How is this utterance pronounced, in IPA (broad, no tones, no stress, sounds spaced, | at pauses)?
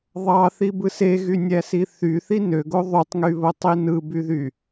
ðˤ ɑ θ i b ɯ s e ɣ y nʲ æ s i θ y θ i n ø ɡ o ðˤ y tˤ ŋ y β o tˤ i n ɯ b y ð y